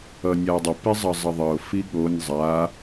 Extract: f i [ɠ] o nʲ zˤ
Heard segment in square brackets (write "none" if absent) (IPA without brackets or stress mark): ɠ